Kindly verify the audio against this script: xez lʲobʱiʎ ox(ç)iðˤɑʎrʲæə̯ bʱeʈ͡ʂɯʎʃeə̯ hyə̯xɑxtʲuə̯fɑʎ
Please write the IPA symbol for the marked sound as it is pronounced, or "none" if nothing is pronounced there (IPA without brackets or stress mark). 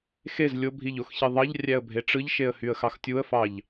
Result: ç